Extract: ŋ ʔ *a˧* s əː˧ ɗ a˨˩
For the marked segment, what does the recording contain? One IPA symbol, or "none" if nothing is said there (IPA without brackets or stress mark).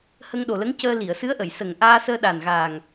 aː˧